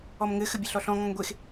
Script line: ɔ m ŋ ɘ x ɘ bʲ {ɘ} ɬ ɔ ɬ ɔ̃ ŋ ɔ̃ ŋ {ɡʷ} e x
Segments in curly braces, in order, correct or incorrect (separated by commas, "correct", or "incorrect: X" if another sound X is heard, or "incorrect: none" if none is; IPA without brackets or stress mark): correct, correct